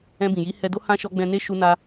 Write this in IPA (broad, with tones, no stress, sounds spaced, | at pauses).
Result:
ɛ̃˧ b ĩ˨ j i˨˦ h ɛ˧ d o˦ h ã˦ ʃ ɔ˦ ɡ͡b ɛ̃˧ n e˦ ʃ u˦ n a˦